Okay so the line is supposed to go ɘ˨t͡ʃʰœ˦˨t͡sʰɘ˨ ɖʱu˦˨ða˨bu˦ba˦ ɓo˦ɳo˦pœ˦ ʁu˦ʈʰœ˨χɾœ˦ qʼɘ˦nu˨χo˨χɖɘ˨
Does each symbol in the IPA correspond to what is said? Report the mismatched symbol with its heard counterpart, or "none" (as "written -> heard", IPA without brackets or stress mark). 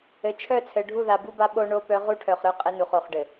none